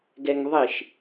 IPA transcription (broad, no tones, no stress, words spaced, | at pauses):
ɡɛŋðˤiʃ